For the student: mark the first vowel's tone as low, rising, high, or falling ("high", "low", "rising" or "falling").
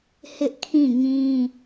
high